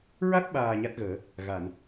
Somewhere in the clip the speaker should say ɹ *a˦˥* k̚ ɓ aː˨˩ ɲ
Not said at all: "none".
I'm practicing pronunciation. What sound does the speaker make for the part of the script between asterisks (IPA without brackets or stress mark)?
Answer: a˦˥